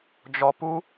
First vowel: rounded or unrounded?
rounded